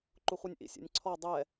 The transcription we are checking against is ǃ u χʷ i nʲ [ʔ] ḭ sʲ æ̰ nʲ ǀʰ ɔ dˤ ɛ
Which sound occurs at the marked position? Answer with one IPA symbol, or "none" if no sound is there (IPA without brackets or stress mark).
ʔ